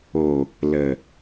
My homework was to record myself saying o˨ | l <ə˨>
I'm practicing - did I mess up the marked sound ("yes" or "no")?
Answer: no